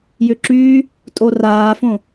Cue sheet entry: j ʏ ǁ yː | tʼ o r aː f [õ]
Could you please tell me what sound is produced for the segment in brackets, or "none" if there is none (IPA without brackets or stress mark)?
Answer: õ